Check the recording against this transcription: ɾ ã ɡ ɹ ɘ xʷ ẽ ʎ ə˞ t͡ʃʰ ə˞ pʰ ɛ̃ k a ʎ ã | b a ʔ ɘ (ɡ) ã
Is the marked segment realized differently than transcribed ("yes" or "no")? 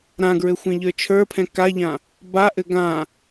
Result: no